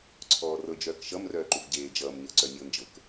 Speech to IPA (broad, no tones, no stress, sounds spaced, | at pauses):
ǀʰ ɔː r ɤ d͡ʒ œː k ʃ ʌ m r œː ǃ u v ɟ eː d͡ʒ ʌː m ɲ ɤ ǀ œ nʲ ɤ n d͡ʒ ɤ k